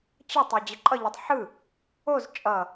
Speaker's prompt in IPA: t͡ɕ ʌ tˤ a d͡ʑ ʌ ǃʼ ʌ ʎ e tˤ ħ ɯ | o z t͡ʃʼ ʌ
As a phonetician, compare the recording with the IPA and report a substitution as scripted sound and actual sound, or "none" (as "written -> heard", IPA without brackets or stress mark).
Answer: none